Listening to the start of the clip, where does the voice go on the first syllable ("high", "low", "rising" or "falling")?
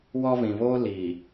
high